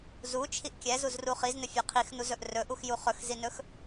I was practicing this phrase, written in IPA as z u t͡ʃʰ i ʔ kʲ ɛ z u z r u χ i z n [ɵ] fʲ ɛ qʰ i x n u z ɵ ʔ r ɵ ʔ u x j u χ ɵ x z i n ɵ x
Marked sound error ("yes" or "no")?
no